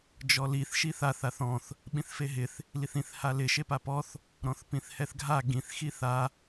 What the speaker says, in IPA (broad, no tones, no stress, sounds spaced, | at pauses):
d͡ʒ ɔ l i θ ʃ i θ a θ a θ ɔ̃ θ | ɓ ĩ θ f e ɦ ɪ θ | l i θ ĩ θ h a l ɪ ʃ e p a p ɔ θ | ɾ ɔ̃ θ p ĩ θ h ɛ θ ɡʱ a ɡ ĩ θ x i θ a